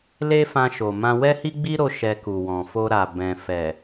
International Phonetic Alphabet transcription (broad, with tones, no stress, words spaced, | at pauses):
le˦fã˧ʃo˨mã˧ wɛ˦hi˦ɡ͡bi˦ɾo˧ ʃɛ˧ku˨wɔ̃˨ fo˧ ɾa˨ bɛ̃˨fɛ˨